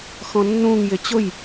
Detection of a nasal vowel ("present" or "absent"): present